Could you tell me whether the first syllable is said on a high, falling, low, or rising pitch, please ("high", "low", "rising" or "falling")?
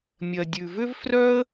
low